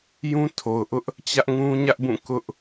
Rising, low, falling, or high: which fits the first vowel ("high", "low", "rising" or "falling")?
high